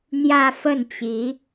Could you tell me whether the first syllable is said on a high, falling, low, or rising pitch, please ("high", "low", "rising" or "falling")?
falling